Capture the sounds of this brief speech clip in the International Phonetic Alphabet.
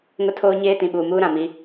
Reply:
ŋ ʊ˦ tʰ oː˦ ɲ eː˦ t ĩ˨ ɓ uː˨ m uː˦ ɾ ã˨ m i˦

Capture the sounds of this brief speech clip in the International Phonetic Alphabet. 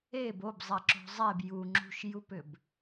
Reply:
e b o b zˤ ɛ ǁ o̤ zˤ e b j u ŋ͡ǁ ṳ ʃ j u p ʏ b

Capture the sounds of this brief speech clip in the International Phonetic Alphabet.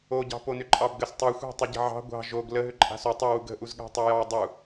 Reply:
o ɟ ɑ̤ p o n ʏ ǃʼ ɑ b ɡ ə s tˤ ɑ xʷ a̤ tˤ ʏ ɟ ə̤ ʕ ɑ̤ ɡʷ ɑ̤ ʒ o ɡ l ə ɦ ʏ ǃʼ a̤ s o tˤ u w u ɡ ə̤ ʔ u z ɠ a̤ tˤ o j ɑ dˤ u

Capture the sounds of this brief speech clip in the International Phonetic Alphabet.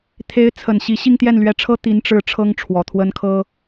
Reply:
t̪ʰ e˧˥ ɪ̯ t͡sʰ ə˨˩ n ɕ i˧˥ ɕ i˥˧ ŋ t̪ j ɛ˥˩ n l ɥ ɛ˧˥ ʈ͡ʂʰ ɤ˥ t̪ i˧˥ n ʈ͡ʂ ɻ̩˧˥ ʈ͡ʂʰ ɤ˥ ŋ ʈ͡ʂʰ w ɔ˨˩ t̪ʰ w ə˥ n kʰ ɤ˥

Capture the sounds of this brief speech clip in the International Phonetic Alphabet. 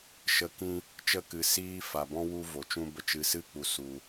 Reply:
ʃ ə˨˦ k ĩ˧ | t͡ʃ ə˦˨ k ɨ˨ s iː˦ f a˨ b ɔ̃˦ w u˦ v o˨ t͡ʃ ũ˦ b ə˦ t͡ʃ ɨ˧ s ɨ˦ k͡p u˨ s u˨

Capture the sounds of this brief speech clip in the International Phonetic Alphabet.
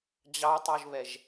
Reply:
d͡ʑ ɑ tˤ o ʒ β ɛ ʒ

